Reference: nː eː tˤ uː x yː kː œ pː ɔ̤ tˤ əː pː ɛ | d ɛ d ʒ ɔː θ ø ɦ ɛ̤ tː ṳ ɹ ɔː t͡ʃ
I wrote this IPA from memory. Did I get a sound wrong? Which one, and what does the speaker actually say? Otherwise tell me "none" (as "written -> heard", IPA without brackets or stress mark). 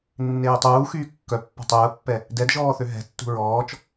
none